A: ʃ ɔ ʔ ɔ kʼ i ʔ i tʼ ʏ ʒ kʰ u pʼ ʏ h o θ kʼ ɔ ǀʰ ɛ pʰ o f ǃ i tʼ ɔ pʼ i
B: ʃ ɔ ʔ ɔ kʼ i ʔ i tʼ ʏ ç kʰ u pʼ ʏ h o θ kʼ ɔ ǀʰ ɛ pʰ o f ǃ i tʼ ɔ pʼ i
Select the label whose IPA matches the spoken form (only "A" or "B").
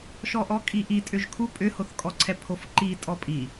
A